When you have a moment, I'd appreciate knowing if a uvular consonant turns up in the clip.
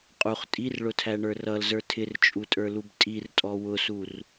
yes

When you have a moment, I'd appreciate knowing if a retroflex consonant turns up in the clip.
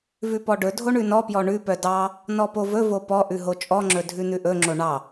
yes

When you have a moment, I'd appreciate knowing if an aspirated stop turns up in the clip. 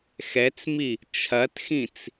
yes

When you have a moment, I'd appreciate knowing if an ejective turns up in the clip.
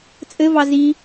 yes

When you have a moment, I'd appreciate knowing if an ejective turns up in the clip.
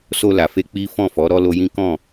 no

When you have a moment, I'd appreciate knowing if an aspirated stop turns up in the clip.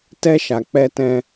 no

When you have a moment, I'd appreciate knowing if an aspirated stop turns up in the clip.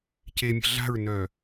no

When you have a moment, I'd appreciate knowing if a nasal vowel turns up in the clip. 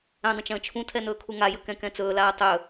yes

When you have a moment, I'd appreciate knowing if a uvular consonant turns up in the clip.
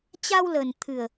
no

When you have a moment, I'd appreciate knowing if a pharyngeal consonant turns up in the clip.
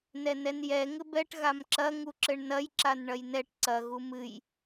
no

